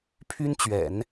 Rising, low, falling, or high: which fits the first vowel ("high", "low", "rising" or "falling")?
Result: high